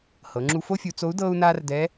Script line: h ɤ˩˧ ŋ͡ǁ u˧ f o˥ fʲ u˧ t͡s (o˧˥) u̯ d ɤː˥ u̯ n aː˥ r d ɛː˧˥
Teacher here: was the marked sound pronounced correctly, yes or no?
yes